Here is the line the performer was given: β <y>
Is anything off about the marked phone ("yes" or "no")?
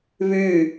no